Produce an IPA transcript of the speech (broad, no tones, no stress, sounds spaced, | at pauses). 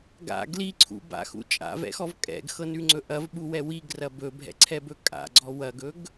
ɡ a̰ ɡ l i ǀʰ ṵ b a̰ x ṵ t͡ʃʼ a̰ v ɛ̰ x ɔ v kʼ ɛ̰ ɡ x ɤ n ʉ ŋ͡ǀ ɵ ʔ ɐ v ɓ u w ɛ w i ɡ r ɐ b ɵ bʱ ɛ̰ ǀʰ ɛ b ɵ kʼ a̰ ɡ͡ǀ ɔ w ɐ ɡ ɵ ɡ